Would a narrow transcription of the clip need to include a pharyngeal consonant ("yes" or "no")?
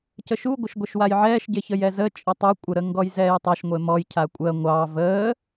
yes